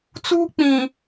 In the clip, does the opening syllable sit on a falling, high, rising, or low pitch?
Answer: high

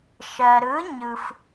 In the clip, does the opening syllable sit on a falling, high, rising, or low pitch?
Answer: low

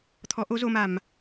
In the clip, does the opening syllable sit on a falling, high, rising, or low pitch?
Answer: rising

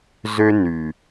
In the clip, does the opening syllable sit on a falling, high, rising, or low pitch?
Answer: high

